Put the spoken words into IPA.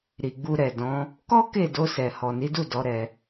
ɾ i˨ ɡ͡b u˧ ɾ ɛ˨ d ɔ̃˨˦ | k ɔ˦ k e˦˨ d o˧ s ɛ˨ h ɔ˨ n i˨˦ d u˦˨ d ɔ˨˦ ɾ ɛ˧

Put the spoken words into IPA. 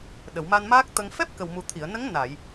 ɗ ə˨˩˨ w m a˧ n m aː˦˥ k̚ t̪ ə˧ ŋ f ɛ˦˥ p̚ k ə˨˩ w m u˨˩ t̪ʰ i˨˩˨ ə̯ n ə˧˥ ŋ n a˨˩˨ j

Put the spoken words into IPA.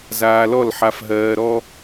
z aː˧ l ɔ˦˨ l ħ a˧ f ɦ ɜː˧ ɾ ɔ˦

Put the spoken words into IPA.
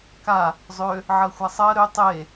k a | zˤ ø | ʕ ɜ xʷ a sˤ ɜ ɾ ø tˤ e

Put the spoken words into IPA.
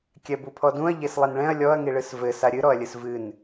kʲ ɛ b u pʰ ɔ d ũ ɐ̯ ʎ e s lˠ i n ɭ ɛ̃ ɐ̯ lʲ ɔ ɐ̯ ŋ i ɭ ɨ s v ɘ s a ɾʲ ɨ ɾ ɔ ɐ̯ lʲ ɨ s v ɨ n

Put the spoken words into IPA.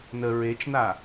n ə ɹ e t͡ʃ n a

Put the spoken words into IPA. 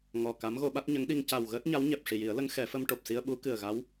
ŋ ɔ˨˩ k a˧˥ m ɣ o˧ ɓ a˦˥ t̚ ɲ ə˧˥ ŋ ɗ i˧ ŋ c a˨˩ w ɣ əː˦˥ t̚ ɲ a˧˥ w ɲ ɛ˨˩ p̚ ʂ i˨˩ j i˨˩˦ ə̯ l ə˧˥ ŋ x ɛ˨˩˦ f ə˧ m ʈ o˨˩ p̚ s i˧ ə̯ ɓ u˧˥ k ɨ˨˩ ə̯ ɣ a˧˥ w

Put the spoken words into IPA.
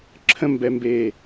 ǁʰ ə̃ m b ɛ m b eː

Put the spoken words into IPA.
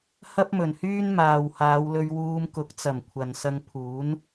h ɐ˥ p̚ m ɵ˨˩ n h yː˥ n m aː˨ w h aː˨˧ w l ɵ˧ ɥ w uː˧ m k ʊ˨˥ k̚ t͡s ɐ˨˩ m kʷʰ ɐ˨ n s ɐ˧ ŋ pʰ uː˨˥ n

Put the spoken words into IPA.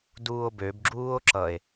d uː o̯ b ø b ɡ͡ǁ uː o̯ ǁ ʌ e̯

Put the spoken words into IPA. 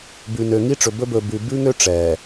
b ʉ˨ n ø˨ ŋ i˦ ʈ͡ʂ ɵ˨ b ɵ˦ b ɵː˨ b ʉ˨ b ʉ˦ ŋ ø˦ ʈ͡ʂ ɛː˨

